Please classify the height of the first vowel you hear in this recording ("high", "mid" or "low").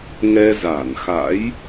mid